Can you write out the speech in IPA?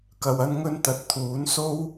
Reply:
kɐ˧wɐ˥nŋɵ˥n t̪ɐ˨t̚t̪ʰuː˨˥nso˥w

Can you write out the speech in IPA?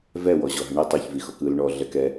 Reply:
vɛwɔ ʑɔɦəɳi tˤoçvixɔk ɯl ɳɔ ɮɛkɛ

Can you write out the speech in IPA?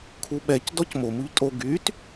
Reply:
kʰuɓɛc dɔcmo muʎtʼo ɡyt

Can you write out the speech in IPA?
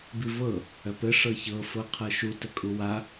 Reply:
bivɤ | œpɘ ʂɤçɤ fɤqʰɤʃu təkʼuwa

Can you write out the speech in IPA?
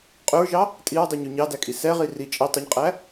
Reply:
qʼɵɹʒɑ | tʼiɹdˤiɲy ɲɑdækʼi sɛʁi ri t͡ʃʼi tˤɵɲqʼæ

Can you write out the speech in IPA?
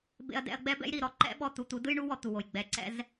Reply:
bḛ˥ɐ̯dɛ̰˥ɐ̯ ɡ͡bɛ˥bɛ̰˥jɾi˩˧˩ ɾɔ˥ǃɛ̰˥ ɓɔ˥˧ t̪u˧t̪u˨˥ dɯ˥jɳu˥wɔ˧ t̪u˩˧˩wo˩˧˩j ɡ͡bɛ˩˧˩ǀɛ̰˥˧z

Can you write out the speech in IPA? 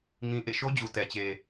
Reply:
ŋĩ˨ ʔḛ˦˨ʃo˦d͡ʑu˨ tɛ˨t͡ɕe˨

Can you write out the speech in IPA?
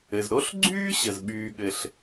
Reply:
ɘ˩z ɾo˥ɬɡ͡ǀyː˥ɕə˩z ɓyː˩ɠɘ˩ɬ

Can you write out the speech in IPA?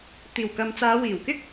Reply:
t̪iː˨˩wkɐ˨mt͡saː˨˧ wiː˨˩wkɪ˥k̚

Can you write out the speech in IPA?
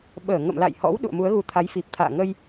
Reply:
ɓəː˧˩ŋə̰˧˨m la̰˧˨jhɔ̰˧˥w ɗṵ˧˨ə̯mu˨˦ə̯ɣu˨˦t̪ʰa˨˦j fi˨˩p̚t̪ʰa̰ː˧˨ŋə˧j

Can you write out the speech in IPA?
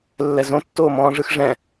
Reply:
lːɛzõtːoːmɔ̃ː ʐɯxʐɛ̃

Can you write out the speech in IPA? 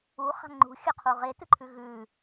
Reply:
uχa̤ ŋ͡ǃṳxʲɵqʰu ʁetɨǃʰʉ ɣʉ

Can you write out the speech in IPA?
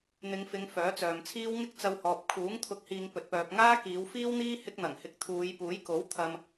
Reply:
n̪ɪ˨˧ŋfɪ˨˧ŋ fœː˨˥t͡sœː˨mt͡sʰiː˥w ŋɪ˥k̚t͡sɐ˧whɔː˨p̚ kʰuː˨˥ŋ t̪ʰʊ˨˥k̚hiː˨ŋ pɵ˨t̚pœː˨p̚ ŋaː˥kiː˨˧wfiː˥wn̪iː˥ hɪ˥k̚n̪ɐ˨˩ŋhɪ˧k̚ t̪ʰuː˨˧j puː˨˥jko˨˥w t̪ʰɐ˨m

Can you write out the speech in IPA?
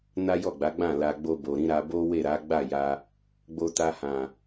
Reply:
na˦jɔ˦˨ɡ͡ba˨˦ɡ͡bã˦˨ la˨ɡ͡bo˧bo˨ɾĩ˨˦ ɾa˧bo˦ we˦˨ɾa˨˦ ɡ͡ba˦˨ja˧ | ɡ͡bo˧ta˧hã˨

